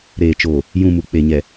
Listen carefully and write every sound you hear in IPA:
ɾeː˨t͡ʃoː˨ | jũ˦˨mu˨ k͡pe˨ɲɛ˨

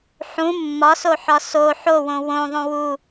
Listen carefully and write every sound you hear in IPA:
ħũ mːɒsoħɒ so ħowõ wõðˤõ wu

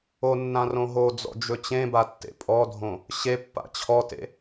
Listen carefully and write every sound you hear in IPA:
onːã rõɦod͡zɔ̰ d͡ʒɵt͡ɕẽba tːḛpʼɔdʱõ | ɕepːa̰ t͡ɕʰɔtḛ

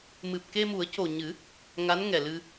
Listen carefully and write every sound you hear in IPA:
mɨ˨˩p̚ke˧mu˨˩˦ə̯co˨˩ ɲɨ˨˩˦ | ŋa˧˥nŋɛ˨˩lɨ˧

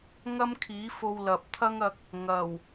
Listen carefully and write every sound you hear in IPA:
ŋɐ˥mkʰiː˨˥fo˧wlɐ˨p̚ t̪ʰɐ˥ŋɐ˧k̚ | ŋɐ˨˩w

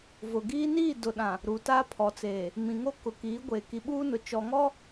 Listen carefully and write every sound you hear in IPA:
vʊ˨ɡiː˦ niː˦˨ dʊ˨ ɗã˨ | ɾu˨ta˦ pʰɔ˨t͡seː˨ | mĩ˨ŋo˦ kʊ˨kiː˨˦ɡʷeː˨ ki˨ɓuː˦nʊ˨ t͡ʃɔ˨ŋɔ˦

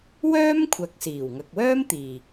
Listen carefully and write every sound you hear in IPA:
wœː˥mkʷʰɐ˨k̚siː˨˩w ŋɐ˨k̚wœː˥mt̪iː˨˩

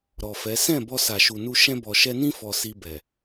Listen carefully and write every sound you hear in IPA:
ɾɔ˨fɛ˨˦ sɛ̃˦˨ bɔ˧sa˨ʃu˨nu˧ ʃɛ̃˧bɔ˨ʃɛ˧nĩ˦ fɔ˧si˧bɛ˨

